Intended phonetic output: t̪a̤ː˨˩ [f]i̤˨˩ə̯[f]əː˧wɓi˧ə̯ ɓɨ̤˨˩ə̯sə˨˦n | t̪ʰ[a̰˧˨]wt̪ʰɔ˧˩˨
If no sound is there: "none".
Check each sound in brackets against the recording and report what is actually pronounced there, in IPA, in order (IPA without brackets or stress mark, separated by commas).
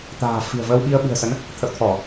f, v, ə̰˧˨